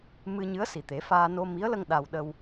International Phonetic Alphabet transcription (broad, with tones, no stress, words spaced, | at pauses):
mɨ˧ ɲɨ˧˥ə̯si˨˩t̪e˨˩˦faː˧ no˧mi˧˥ə̯lə˧ŋ ɗa˧w ɗə˧w